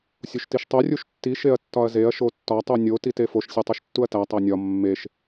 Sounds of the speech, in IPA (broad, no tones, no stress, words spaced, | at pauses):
sʲoʃtiʃtˤo rʲuʃtːi ʃeɐ̯tːɒɐ̯zeɐ̯ ʃotːɒ tˤunʲo titefoʃ sʲetˤoʃtːuɐ̯tæ tˤænʲɒ mːeʃ